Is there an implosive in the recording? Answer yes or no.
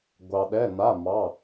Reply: yes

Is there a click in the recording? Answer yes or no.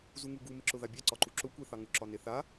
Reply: yes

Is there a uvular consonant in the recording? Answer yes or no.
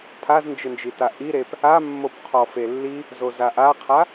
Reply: yes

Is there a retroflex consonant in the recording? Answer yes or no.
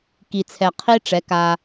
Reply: yes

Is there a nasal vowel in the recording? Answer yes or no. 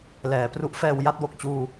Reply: no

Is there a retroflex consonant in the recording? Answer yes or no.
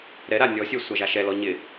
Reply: no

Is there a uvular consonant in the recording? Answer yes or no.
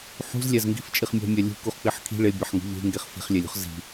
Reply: yes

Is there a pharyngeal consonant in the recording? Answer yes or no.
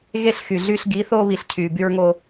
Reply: no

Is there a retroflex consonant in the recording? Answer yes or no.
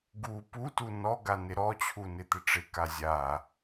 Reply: yes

